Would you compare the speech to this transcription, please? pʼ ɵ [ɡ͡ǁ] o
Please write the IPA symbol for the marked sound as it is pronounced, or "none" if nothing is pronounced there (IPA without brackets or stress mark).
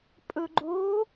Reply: ɡ͡ǃ